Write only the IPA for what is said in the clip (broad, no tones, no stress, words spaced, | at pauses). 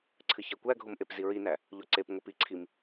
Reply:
ǀʰɨçækʷæɡʱom ʔepziɹinæ | ʎoǀepŋʷep iǀʰim